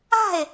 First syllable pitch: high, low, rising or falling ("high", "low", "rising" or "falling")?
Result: falling